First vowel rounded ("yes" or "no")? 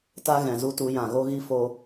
no